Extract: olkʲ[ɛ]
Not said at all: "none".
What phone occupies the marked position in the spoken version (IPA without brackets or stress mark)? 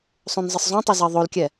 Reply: ɛ